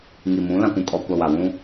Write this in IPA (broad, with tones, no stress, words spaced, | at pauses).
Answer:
ŋi˨mũ˨˦ lã˨kʷũ˨kʼɔ˨kʷa˨ wa˨wũ˦